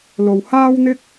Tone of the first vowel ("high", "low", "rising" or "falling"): low